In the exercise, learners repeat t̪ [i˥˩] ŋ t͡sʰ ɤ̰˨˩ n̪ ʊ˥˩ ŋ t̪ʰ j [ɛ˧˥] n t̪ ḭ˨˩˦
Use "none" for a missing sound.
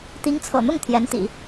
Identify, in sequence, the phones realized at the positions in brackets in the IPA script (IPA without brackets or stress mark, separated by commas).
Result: i˧˥, ɛ˧˥